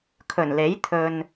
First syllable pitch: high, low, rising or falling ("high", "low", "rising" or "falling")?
low